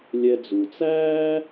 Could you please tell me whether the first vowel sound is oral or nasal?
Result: oral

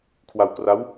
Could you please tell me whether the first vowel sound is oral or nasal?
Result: oral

